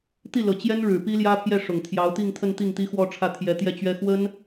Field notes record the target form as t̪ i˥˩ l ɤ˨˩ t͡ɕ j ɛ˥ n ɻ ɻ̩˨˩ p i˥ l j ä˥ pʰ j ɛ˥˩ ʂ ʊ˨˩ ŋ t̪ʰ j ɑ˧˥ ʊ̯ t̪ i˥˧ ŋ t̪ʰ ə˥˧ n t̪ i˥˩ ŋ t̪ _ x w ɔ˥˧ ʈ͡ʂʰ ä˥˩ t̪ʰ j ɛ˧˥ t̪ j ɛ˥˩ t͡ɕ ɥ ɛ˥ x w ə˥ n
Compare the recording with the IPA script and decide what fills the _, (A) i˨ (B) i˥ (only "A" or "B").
B